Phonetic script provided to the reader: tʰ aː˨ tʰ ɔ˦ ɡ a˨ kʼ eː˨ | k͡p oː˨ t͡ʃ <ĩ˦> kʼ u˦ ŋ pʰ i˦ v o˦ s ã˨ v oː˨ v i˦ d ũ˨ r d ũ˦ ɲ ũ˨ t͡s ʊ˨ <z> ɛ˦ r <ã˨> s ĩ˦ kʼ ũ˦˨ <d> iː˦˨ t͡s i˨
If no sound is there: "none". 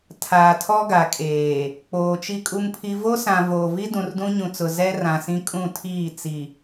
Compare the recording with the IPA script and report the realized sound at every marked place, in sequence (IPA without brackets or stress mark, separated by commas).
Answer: i˦, z, ã˨, tʰ